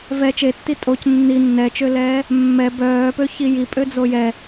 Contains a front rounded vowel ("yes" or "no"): yes